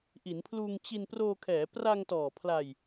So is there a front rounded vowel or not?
no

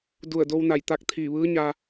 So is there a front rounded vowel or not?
no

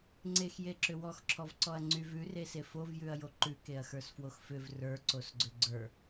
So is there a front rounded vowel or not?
yes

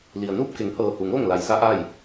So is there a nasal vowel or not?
no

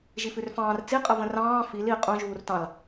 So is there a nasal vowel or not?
yes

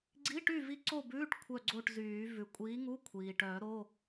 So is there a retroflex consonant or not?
yes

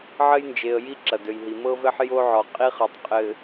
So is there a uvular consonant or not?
yes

